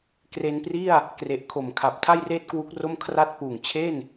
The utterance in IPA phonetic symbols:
kre˧npri˥˩a̯ | kre˨˩ʔ kʰo˩˦mkʰa˨˩p̚ tʰa˥˩jreː˥˩t̚kwu˦˥k̚ro˥˩m kʰra˥˩t̚ puː˨˩ŋt͡ɕʰe˥˩n

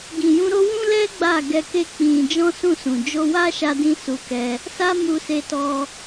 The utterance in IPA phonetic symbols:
ɡĩ˨jũ˧ɾo˦ wũ˦lɛ˦ ɡ͡ba˦˨ɡɛ˧ke˦ k͡pĩ˧ d͡ʒɔ̃˦sũ˦˨sũ˨ d͡ʒo˧wa˦ʃa˧dĩ˧ su˧kɛ˧ | sa˦mu˧se˧tɔ˧

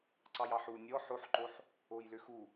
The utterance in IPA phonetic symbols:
ǀɑjɑħu nʲɔ ħoħǃoħ | ojlʏxu

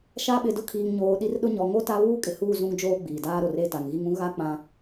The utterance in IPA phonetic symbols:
ʃa˦ ɓɪ˨dʊ˦kʰiː˨ŋɲoː˨ ɗi˦rɗʊ˦ ɲɔ˨ŋo˦ ta˦ βuː˦kʼɪ˨huː˦˨ zũ˦ŋd͡ʒoː˦ ɡ͡biː˨daː˦ɾo˨r e˦˨ta˨ŋɣi˦ŋ ũ˦ ɣa˦ k͡pã˦

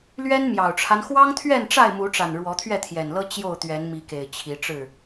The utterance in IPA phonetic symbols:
lɥɛ˦nmjɑ˨˩ʊ̯ʈ͡ʂʰa˦n xwɑ˦ŋt̪ʰɥɛ˥˨nʈ͡ʂa˥˨ɪ̯ mu˨˦ʈ͡ʂa˨˩n ɻwɔ˨˦t̪ʰɥɛ˥˨t̪ʰjɛ˨˩nlɤ˦ t͡ɕjo˥˨ʊ̯t̪ɥɛ˨˦n mi˨˦ke˨˩ɪ̯ t͡ɕʰi˨˦ʈ͡ʂɻ̩˥˨

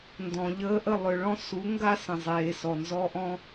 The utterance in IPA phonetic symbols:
ndɔ̃˨ʎəː˧ʔə˦˨ lˠʏ˧ɭɔ̃˦ su˨˦ ŋɡa˦sə̃˨zˤeː˨sɔ˨ nzɔ˧ʔɔ̃˧

